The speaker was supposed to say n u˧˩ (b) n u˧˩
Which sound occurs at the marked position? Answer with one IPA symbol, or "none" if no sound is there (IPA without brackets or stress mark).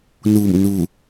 m